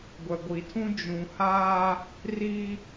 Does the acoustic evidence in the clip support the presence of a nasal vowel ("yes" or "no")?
yes